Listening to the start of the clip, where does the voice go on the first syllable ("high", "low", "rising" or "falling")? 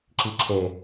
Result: low